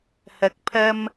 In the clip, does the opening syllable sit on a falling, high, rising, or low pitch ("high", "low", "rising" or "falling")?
rising